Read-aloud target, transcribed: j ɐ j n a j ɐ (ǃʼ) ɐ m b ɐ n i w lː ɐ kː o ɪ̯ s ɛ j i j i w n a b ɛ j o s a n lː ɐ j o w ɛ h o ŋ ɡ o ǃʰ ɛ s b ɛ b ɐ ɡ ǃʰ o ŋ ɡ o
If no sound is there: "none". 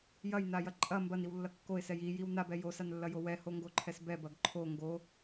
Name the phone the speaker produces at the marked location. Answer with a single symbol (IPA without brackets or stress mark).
ǃʼ